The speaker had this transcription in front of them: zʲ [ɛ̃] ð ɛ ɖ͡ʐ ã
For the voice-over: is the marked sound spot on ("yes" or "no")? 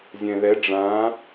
yes